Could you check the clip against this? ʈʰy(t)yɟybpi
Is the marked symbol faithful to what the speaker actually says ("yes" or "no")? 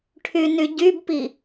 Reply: no